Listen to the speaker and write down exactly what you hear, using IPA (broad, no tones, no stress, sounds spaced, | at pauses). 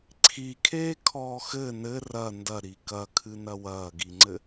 ǀʰ i kʰ eː kʰ ɔː x ɘ n ɘ r ɐ n d ɐ ɾ i k ɐ kʰ ɨ n ɐ w ɐː ɡ i ŋ͡ǀ ɘ